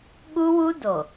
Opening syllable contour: high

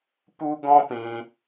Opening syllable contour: high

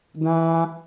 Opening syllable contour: high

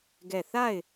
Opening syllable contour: falling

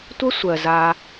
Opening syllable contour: high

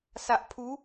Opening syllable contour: low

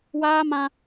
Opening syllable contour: high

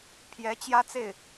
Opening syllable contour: rising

